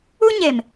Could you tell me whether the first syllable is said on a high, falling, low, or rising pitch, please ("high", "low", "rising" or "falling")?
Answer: high